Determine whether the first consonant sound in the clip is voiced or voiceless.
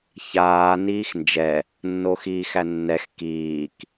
voiceless